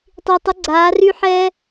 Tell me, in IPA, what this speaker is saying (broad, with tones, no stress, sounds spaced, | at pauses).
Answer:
tˤ i˨ tˤ ə˨˦ ɡ͡ǀ aː˨˦ r y˦ ħ ɛː˦